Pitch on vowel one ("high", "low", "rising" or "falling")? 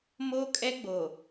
high